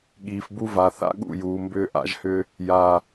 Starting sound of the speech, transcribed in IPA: ɠ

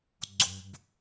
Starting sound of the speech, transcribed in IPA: ɡ͡ǀ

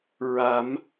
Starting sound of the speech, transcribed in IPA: ɹ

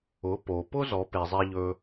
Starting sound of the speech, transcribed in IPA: ʊ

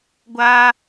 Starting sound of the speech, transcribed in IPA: ɡʷ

